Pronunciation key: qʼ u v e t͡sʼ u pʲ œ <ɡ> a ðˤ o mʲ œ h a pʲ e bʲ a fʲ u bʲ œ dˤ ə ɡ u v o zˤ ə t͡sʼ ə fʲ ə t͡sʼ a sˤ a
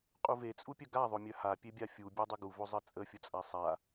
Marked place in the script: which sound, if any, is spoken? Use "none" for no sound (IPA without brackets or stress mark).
ɡ